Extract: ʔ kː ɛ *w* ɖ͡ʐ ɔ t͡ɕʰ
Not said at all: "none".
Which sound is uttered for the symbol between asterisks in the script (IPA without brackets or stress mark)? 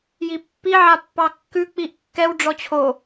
w